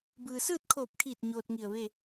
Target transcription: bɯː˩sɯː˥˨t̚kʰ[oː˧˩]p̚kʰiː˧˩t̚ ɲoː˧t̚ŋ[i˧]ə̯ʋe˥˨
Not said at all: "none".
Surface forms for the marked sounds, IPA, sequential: oː˧˩, i˧˩

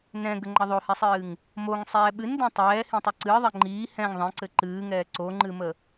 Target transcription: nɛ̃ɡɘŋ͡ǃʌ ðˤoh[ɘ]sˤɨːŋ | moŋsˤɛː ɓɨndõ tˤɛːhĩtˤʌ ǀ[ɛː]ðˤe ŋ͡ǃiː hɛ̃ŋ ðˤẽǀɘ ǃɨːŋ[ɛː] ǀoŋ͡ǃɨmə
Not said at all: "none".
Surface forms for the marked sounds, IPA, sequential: ɛ, ɨː, ɛː

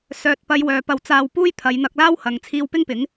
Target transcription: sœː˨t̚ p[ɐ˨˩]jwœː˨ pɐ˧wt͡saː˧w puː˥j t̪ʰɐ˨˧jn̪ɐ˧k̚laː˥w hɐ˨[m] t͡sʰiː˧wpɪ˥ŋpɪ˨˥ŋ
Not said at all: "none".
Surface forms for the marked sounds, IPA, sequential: ɐ˨˧, ŋ

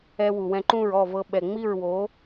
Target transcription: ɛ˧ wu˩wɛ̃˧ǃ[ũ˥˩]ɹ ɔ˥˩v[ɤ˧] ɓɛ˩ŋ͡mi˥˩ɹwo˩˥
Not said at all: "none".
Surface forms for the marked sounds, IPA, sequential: ũ˥˩, ɤ˧

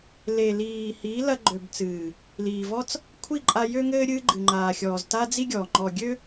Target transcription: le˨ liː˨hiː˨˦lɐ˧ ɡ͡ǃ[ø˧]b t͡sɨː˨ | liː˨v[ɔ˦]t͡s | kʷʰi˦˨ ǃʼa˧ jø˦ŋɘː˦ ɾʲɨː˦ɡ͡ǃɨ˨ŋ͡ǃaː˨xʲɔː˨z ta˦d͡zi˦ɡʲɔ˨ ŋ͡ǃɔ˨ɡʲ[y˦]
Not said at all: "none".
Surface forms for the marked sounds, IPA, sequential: ø˨, ɔ˦, ø˦

